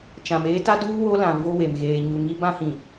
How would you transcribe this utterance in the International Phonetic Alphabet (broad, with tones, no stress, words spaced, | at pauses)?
t͡ʃã˨meː˦ ta˦duː˦ wo˦lã˨vo˦we˨m ɣeː˨ɲu˨ŋi˦ bã˦hĩ˨